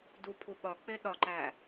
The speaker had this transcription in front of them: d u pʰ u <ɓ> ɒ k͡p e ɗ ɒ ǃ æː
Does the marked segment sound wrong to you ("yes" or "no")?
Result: no